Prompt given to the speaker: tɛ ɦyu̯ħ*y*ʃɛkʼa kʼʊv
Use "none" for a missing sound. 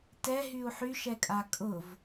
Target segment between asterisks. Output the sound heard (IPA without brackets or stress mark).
y